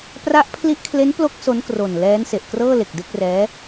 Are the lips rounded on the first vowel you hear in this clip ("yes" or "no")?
no